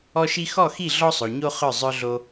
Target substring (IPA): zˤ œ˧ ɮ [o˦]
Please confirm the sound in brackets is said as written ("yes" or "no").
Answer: no